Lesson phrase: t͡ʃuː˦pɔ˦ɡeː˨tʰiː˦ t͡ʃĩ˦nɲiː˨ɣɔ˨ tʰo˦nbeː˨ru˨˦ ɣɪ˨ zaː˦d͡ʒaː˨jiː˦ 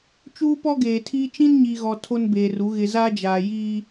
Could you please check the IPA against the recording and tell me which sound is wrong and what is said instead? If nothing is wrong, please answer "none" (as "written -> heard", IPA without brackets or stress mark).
none